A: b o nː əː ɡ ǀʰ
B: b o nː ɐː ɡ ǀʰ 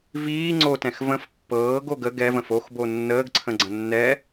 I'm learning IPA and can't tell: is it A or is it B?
A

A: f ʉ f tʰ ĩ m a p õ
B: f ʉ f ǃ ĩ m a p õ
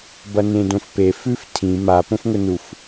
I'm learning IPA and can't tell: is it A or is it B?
A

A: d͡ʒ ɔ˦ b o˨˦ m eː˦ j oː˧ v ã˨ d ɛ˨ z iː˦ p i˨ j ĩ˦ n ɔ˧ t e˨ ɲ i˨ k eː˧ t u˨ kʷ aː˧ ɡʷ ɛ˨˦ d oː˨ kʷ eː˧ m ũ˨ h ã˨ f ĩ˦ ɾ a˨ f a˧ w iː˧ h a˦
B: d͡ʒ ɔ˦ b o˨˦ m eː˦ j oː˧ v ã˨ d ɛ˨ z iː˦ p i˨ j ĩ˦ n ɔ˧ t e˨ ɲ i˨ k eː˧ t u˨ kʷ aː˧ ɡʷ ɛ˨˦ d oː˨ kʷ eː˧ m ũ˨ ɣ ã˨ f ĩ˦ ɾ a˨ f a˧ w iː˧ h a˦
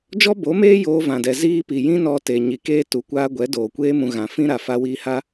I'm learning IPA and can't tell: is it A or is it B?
B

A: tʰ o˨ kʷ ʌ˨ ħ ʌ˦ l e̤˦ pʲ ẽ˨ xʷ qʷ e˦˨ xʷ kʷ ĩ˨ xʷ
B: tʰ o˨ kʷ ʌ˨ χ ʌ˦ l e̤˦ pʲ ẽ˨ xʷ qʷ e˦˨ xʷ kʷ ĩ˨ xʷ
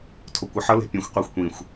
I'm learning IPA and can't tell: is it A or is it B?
A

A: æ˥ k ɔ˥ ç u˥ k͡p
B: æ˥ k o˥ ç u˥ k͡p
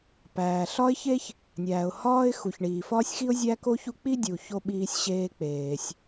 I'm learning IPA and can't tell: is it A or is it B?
B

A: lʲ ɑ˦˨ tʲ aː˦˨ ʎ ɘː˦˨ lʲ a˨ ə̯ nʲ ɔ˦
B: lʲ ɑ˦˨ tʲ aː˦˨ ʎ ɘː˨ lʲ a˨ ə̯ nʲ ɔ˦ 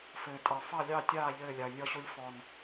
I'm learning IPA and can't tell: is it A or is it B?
A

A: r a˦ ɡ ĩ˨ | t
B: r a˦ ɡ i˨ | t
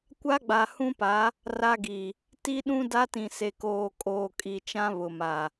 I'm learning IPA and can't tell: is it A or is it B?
B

